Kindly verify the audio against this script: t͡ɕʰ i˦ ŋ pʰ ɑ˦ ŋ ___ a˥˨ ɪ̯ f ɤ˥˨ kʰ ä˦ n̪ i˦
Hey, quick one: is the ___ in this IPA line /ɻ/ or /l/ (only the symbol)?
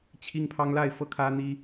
l